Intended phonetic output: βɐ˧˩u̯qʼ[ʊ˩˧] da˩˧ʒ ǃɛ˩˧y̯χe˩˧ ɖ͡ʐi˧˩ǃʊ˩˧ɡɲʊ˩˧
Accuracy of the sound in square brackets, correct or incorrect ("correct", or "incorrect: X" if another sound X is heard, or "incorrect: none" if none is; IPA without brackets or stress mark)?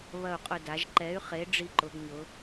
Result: incorrect: ʊ˧˩